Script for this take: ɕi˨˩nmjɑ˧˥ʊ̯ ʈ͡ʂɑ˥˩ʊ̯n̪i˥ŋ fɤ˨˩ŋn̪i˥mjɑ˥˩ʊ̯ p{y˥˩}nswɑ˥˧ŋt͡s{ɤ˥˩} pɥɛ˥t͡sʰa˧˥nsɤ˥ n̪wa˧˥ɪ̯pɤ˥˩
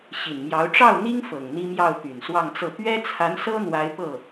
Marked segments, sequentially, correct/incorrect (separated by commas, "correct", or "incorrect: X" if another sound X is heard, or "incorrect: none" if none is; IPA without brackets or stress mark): incorrect: y˨˩, correct